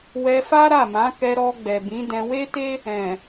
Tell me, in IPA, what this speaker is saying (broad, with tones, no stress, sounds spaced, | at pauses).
w ɛ˧ f a˦ ɾ a˦˨ m ã˨˦ k ɛ˧ ɾ ɔ˧ ɡ͡b ɛ˨ b ĩ˨˦ d ɛ̃˧ w e˦ t e˦ | ɛ̃˨